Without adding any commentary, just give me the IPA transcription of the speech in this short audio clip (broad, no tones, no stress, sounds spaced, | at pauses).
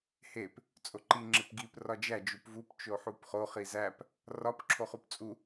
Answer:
h e p | t͡sʼ o ǃ i ŋ͡ǁ e p ɡ i p r ɒ d͡ʒ æ d͡ʒ u p v u p t͡ʃ o ħ u p χ o χ i z æ p | r ɒ p ǁʰ o χ u p t͡sʼ u